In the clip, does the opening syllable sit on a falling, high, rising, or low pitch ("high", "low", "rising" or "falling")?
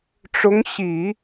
rising